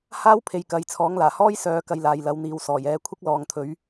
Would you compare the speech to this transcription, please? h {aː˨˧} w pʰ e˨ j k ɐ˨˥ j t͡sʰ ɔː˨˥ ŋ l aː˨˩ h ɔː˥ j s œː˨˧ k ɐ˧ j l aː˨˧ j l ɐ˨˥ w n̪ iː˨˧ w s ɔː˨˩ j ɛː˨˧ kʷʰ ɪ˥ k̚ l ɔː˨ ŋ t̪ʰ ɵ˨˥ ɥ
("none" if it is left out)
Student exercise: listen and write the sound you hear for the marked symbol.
aː˥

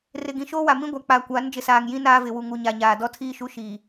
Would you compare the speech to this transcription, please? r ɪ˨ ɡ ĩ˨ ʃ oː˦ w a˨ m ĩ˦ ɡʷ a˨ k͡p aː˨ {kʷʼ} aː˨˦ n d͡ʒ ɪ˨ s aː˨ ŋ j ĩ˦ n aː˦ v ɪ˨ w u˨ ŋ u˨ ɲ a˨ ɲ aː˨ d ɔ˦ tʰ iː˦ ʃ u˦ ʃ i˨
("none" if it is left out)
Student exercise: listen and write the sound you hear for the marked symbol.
kʷ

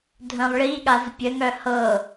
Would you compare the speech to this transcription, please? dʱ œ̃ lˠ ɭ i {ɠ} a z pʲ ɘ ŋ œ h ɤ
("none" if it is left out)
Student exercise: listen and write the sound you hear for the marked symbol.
ɠ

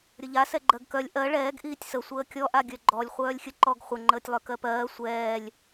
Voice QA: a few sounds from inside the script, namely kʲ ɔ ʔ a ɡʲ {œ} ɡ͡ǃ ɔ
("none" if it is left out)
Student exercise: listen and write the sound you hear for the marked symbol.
œ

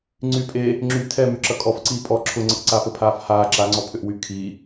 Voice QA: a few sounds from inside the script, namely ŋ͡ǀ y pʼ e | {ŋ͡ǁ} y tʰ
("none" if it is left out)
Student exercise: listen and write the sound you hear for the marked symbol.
ŋ͡ǁ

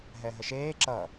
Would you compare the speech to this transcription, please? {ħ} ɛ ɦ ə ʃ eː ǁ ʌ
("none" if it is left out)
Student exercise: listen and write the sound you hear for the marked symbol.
ɦ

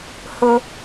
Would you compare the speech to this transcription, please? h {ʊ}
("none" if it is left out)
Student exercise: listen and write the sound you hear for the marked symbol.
ʊ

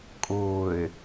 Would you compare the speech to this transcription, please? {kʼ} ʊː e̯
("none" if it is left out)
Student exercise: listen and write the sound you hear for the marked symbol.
kʼ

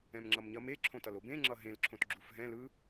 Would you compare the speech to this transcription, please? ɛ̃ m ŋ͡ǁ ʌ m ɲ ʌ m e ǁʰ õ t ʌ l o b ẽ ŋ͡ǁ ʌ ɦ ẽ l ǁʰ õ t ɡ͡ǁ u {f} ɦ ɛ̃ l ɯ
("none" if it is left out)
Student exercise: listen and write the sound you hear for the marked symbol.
f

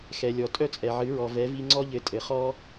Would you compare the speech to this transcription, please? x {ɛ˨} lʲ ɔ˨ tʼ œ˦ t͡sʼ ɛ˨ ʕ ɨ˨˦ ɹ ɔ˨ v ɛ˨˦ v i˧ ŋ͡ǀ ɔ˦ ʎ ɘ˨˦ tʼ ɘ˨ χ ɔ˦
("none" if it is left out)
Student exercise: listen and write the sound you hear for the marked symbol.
ɛ˨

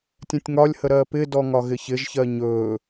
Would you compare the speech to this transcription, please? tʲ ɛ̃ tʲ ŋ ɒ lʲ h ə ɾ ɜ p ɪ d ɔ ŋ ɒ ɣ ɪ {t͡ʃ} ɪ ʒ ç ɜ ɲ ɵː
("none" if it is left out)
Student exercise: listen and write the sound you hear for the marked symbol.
ç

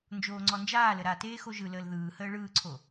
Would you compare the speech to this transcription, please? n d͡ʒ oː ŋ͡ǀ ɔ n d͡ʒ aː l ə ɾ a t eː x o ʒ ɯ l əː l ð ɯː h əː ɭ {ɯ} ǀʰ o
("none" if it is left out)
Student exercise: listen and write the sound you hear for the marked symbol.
ɯː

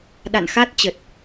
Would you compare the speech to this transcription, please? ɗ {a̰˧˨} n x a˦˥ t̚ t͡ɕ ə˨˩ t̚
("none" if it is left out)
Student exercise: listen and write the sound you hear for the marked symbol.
a̰˧˨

